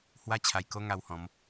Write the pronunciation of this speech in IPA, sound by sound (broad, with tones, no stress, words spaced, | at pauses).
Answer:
hwa˦t͡ɕʰa˧jko˦ ŋa˧whɔ̃˨˦m